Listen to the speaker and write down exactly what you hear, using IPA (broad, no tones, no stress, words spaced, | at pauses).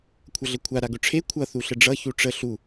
kʷʰʌɮəkʷʰa ɾaɡʊʈ͡ʂʰe kʷʰʌ θuɬəɖ͡ʐʌ çuʈ͡ʂə ɬu